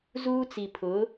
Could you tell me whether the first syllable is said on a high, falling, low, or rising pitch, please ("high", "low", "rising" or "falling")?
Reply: high